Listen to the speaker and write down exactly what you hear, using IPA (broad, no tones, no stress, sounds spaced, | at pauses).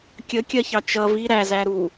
kʲ ə kʲ ɜ ç ɑ t͡ʃ ʌ v i ɾ æ z æ ɾ u